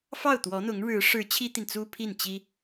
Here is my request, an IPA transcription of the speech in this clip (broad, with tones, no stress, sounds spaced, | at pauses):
f ɑ˥˩ ʊ̯ t̪ w ɔ˧˥ n̪ ʊ˧˥ ŋ ɻ ɻ̩˧˥ ʂ ɻ̩˧˥ t͡ɕʰ i˥ t̪ i˨ n t͡s u˥ pʰ i˥˩ n t͡ɕ i˥